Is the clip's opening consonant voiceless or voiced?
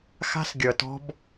voiceless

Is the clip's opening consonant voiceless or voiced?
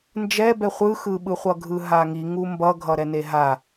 voiced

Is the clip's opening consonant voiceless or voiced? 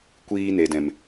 voiceless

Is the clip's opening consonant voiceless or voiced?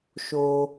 voiceless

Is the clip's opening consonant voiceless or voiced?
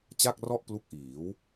voiceless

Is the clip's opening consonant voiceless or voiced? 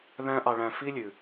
voiced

